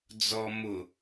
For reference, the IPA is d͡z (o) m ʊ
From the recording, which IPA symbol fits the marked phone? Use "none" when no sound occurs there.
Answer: ɔ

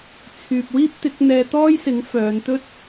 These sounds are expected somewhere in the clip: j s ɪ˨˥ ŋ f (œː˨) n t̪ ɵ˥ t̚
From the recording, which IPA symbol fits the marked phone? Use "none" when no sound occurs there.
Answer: œː˨˧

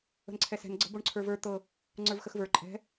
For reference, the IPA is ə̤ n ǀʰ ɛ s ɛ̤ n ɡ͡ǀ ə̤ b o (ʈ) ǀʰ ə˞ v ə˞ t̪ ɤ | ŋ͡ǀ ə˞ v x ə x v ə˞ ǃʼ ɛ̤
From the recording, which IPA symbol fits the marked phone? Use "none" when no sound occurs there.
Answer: ɳ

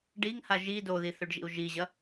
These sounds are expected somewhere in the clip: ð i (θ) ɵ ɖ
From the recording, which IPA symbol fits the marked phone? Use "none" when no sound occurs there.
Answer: θ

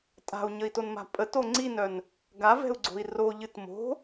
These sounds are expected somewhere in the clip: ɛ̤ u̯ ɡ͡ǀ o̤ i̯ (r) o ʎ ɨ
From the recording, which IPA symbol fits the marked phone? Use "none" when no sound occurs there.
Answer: r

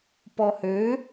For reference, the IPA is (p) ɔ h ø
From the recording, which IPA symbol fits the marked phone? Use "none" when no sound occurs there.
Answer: p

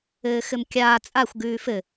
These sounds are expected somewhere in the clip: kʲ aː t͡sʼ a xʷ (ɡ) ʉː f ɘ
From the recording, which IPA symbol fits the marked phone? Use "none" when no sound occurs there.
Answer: ɡ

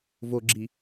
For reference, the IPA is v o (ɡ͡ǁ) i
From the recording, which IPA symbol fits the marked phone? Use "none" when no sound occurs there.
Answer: ɡ͡ǁ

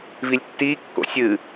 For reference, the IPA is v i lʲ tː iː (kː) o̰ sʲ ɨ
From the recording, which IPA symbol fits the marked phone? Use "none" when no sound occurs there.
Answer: kː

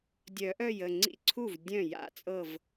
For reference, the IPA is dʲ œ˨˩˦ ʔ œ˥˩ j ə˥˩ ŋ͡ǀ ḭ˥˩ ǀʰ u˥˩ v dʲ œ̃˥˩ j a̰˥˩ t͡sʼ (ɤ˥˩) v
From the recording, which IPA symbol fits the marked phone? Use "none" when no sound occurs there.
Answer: ɤ˥˩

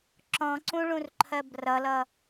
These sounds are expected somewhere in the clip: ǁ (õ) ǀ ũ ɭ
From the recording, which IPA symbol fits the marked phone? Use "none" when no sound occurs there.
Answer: ɔ̃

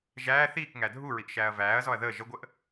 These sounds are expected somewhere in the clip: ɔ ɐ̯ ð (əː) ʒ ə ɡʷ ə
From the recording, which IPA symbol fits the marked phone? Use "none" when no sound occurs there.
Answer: əː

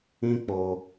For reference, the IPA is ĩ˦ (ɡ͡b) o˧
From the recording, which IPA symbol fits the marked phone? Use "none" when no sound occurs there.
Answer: k͡p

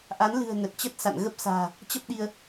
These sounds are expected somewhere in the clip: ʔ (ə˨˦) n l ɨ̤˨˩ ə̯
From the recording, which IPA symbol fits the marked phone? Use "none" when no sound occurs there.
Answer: a˨˦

